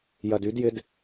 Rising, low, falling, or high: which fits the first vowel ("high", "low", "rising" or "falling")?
low